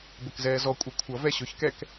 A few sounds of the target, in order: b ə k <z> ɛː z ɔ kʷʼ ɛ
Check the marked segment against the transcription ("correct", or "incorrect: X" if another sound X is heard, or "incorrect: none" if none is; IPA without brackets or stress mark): correct